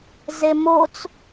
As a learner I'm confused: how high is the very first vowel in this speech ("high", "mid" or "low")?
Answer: mid